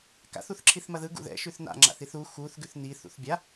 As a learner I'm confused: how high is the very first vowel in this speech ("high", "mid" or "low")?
low